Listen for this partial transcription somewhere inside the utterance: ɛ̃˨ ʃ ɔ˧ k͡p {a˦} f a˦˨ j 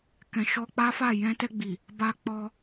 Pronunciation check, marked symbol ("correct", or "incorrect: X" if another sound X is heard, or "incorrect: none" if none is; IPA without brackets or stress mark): correct